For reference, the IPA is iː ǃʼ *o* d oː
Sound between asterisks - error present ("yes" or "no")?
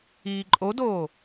no